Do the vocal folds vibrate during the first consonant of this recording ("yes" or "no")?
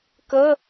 no